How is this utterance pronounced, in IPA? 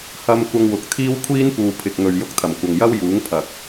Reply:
h ɐ˧ m kʷ ɐ˧ ŋ w ʊ˨ k̚ t̪ʰ iː˥ w kʷʰ iː˥ n p uː˨ pʰ ɪ˨ k̚ ŋ ɵ˨ ɥ j ʊ˧ k̚ t̪ʰ ɐ˨˩ m kʷ ɐ˨ ŋ j ɐ˥ w j uː˨˥ ŋ pʰ ɐ˨ k̚

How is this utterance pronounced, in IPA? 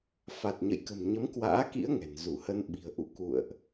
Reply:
f a˨˩ t̚ ɲ ə̰˧˨ j k ə̤˨˩ m ɲ ə˨˦ m k w a̰ː˧˥ k ḭ˧˥ ə̯ ŋ ɛ̤˨˩ n z u˧˩ h ə˧ n ɓ i̤˨˩ ə̯ ʔ ṵ˧˨ k ṵ˧˨ ə̯ ʔ

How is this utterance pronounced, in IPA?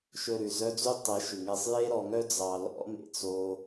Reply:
ʃ ɵ˧ ɾ ʉ˨ z œ˦ d͡z y˦ tˤ ɛ˨˦ ʃ ʉ˨ ŋ ɛ˧ sˤ j e˦ ɾ ɔ˨ ŋ œ˦ d͡z ɑ˨ l ɔ̰˦ m ḛ˧ t͡s o˦

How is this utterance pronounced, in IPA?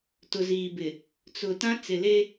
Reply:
t ʊ˨ z iː˨ b ɪ˨ | t͡s ʊ˨ t ã˦ t͡s ɪ˨ l e˦

